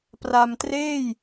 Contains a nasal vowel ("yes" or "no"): no